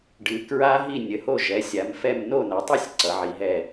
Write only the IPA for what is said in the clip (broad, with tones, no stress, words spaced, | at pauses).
ɖɨ˩˧kɹa˦˥ɦi˦˨ nʲə˩˧ho˦˨ ʒɛ˩˧sʲa˩˧m fɛ˦˨m no˦˨nʌ˩˧tˤi˦˥sʲ ǀʌ˩˧ʕi˩˧ɦɛ˦˨